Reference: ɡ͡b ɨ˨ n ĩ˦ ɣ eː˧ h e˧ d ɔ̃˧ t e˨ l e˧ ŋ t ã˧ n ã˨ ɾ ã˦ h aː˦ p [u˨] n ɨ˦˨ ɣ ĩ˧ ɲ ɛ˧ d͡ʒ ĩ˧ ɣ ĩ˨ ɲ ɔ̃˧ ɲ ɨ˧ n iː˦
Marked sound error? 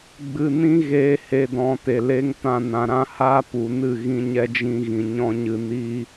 no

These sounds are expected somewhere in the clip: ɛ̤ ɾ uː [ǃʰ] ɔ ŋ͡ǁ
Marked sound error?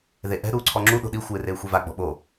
yes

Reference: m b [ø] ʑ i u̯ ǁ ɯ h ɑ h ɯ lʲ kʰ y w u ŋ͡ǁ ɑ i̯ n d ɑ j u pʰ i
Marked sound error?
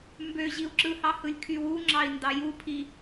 no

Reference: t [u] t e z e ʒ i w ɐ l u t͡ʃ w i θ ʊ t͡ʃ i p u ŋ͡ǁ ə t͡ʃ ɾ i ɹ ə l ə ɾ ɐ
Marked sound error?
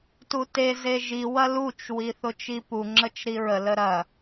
no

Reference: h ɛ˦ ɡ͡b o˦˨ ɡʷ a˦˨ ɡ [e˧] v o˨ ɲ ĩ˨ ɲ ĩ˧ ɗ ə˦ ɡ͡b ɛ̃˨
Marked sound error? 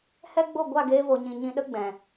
yes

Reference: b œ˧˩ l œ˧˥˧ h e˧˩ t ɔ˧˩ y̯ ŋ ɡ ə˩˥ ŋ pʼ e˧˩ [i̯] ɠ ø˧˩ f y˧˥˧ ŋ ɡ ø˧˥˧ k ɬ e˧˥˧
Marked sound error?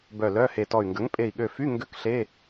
no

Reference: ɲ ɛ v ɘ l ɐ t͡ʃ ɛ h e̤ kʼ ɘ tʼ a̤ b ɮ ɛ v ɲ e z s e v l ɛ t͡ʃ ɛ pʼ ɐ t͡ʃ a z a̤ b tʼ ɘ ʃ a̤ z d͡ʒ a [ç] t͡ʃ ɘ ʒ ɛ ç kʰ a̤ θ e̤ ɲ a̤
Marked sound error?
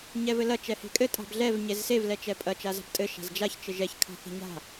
no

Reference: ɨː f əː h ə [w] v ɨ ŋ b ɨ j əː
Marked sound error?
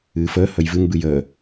yes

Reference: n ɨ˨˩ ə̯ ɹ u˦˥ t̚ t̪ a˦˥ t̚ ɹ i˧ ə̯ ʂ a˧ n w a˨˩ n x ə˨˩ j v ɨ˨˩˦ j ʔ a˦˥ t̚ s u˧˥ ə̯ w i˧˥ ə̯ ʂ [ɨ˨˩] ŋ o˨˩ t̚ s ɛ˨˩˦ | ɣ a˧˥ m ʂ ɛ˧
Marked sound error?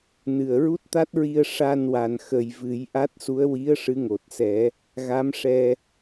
yes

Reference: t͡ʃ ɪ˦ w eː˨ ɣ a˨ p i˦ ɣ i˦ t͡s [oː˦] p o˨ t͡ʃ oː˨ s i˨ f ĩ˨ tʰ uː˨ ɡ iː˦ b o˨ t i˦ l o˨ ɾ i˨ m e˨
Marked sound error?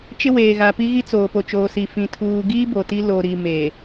yes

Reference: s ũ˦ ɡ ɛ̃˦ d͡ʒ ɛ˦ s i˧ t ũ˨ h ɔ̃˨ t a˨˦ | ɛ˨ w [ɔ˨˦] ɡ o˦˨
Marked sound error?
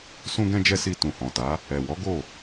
no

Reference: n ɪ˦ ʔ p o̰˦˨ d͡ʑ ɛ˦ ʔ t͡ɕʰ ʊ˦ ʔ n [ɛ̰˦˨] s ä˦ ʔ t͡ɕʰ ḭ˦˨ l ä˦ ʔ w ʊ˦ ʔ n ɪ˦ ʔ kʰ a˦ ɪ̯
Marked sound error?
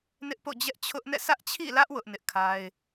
no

